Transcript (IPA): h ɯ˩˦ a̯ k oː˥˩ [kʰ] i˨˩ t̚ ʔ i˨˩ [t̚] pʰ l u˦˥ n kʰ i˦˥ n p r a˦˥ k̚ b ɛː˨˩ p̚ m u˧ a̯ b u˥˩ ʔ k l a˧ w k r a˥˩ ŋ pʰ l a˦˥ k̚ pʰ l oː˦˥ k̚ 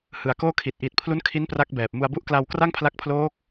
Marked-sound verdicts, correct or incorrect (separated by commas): correct, correct